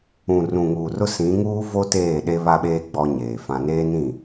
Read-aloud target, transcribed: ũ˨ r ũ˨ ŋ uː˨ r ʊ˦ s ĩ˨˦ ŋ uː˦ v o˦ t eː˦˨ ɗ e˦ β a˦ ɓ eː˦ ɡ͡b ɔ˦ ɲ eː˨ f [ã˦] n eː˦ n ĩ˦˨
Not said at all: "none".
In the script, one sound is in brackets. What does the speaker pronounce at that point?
ã˦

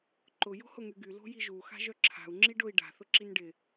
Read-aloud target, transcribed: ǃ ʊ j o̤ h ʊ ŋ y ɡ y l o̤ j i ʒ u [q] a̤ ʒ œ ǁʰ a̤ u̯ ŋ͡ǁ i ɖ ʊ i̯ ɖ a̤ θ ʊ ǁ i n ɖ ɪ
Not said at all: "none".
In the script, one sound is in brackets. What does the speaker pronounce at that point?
x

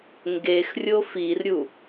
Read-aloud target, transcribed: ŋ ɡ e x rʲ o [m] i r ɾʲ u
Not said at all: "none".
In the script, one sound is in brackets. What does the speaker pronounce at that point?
f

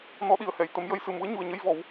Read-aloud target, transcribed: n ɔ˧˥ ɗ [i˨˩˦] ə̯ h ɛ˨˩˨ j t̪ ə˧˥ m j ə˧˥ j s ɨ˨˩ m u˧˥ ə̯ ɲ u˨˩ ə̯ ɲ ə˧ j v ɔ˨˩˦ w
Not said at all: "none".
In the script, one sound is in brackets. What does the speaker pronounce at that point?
i˨˩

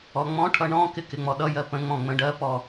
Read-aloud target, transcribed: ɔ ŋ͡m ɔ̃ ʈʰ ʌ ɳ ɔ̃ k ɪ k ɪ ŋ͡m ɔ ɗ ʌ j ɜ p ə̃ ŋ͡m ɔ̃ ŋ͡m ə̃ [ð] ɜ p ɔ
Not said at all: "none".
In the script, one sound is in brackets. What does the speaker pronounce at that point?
ɖ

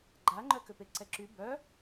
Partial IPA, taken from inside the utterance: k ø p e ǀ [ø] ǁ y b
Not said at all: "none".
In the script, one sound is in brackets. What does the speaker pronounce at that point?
ɛ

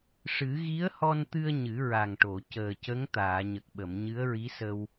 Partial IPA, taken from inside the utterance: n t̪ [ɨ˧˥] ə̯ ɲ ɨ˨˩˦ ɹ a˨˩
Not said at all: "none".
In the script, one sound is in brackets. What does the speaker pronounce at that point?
ɨ˧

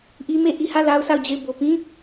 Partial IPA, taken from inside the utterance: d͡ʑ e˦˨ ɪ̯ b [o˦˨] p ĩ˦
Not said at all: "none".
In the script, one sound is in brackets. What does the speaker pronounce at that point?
o˨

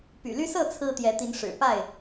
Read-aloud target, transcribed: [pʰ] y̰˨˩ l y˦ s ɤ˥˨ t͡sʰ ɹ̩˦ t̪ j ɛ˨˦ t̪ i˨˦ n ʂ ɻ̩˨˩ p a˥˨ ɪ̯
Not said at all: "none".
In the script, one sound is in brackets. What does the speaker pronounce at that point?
p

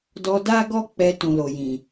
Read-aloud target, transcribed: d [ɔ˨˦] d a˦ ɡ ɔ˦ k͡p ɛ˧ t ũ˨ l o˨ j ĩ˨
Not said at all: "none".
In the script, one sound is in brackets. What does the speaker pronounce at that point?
ɔ˧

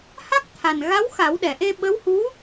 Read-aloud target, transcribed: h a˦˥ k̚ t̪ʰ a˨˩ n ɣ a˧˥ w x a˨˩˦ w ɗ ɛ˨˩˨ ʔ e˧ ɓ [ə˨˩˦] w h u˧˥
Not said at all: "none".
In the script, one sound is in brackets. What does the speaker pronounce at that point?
ə˧˥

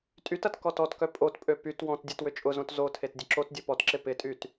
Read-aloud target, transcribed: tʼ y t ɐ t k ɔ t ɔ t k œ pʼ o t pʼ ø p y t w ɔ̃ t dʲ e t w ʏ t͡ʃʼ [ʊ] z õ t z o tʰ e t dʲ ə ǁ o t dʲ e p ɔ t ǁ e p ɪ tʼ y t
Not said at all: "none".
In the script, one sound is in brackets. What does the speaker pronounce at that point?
ʊ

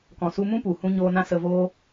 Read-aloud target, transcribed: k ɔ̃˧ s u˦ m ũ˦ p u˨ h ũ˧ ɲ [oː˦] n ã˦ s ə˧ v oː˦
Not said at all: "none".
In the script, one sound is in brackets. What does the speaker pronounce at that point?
oː˧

